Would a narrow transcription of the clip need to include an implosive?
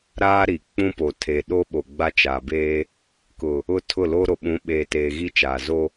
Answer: yes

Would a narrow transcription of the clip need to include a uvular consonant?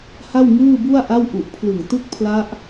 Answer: no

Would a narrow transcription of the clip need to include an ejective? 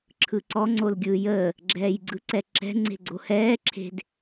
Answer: no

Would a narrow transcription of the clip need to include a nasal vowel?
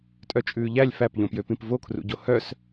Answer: yes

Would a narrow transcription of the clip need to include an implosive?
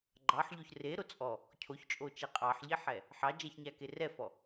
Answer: no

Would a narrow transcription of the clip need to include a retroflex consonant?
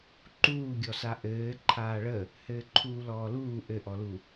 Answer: yes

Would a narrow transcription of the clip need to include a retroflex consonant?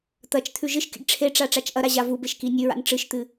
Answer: yes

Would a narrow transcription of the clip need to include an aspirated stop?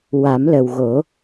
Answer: no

